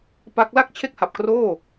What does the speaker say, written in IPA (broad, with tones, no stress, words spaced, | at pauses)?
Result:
pa˦˥k̚ la˥˩k̚t͡ɕʰe˥˩k̚ha˨˩p̚kroː˥˩